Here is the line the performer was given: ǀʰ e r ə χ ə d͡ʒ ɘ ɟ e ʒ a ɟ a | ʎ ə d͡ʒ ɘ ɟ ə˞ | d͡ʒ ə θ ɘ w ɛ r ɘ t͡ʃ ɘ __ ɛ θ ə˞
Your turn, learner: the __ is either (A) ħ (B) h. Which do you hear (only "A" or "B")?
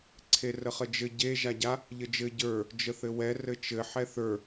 A